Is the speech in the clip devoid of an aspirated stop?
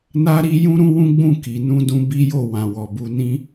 yes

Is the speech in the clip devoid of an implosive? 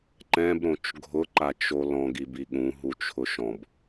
no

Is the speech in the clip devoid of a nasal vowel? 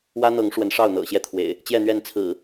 yes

